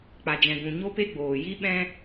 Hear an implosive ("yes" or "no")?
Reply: yes